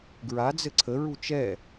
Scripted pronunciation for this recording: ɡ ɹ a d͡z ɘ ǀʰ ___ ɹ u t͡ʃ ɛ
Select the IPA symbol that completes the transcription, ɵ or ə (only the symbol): ə